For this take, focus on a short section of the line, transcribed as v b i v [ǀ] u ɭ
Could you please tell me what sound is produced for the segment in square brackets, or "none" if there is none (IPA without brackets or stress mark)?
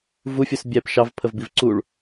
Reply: ǀ